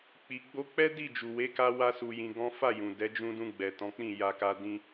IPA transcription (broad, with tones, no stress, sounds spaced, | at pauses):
k͡p i˨ ɡ͡b o˧ k͡p ɛ˦ d i˦˨ d͡ʒ u˨ w e˨˦ k a˧ w a˦ s u˧ j ĩ˧ ɡ ɔ̃˦ f a˦˨ j ũ˨ d ɛ˨˦ d͡ʒ ũ˧ d ũ˧ ɡ͡b ɛ˨ t ɔ̃˨˦ k͡p ĩ˦˨ j a˧ k a˧ d ĩ˧